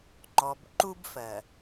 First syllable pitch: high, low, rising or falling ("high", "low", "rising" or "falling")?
low